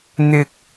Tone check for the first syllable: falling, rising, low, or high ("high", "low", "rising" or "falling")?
low